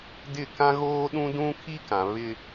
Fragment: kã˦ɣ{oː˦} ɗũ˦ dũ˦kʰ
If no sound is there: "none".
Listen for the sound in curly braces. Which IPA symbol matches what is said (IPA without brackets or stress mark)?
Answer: oː˦